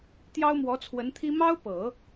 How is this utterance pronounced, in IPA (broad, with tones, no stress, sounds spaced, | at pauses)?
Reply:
t̪ j ɑ˥ ʊ̯ m w ɔ˧˥ t͡sʰ w ə˧˥ n t̪ʰ i˥ m ɑ˥ ʊ̯ p ɤ˨˩˦